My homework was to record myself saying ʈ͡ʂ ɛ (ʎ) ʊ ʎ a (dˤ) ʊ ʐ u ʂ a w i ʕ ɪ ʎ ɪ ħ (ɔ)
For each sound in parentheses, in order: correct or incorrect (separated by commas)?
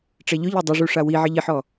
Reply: correct, correct, correct